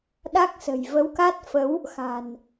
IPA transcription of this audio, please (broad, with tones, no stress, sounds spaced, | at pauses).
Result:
ɗ a˦˥ k̚ s ə̤˨˩ j v ə˨˦ w k a˦˥ t̚ f ə˨˦ w | x a̤˨˩ n